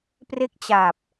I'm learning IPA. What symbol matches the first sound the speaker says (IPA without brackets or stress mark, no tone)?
p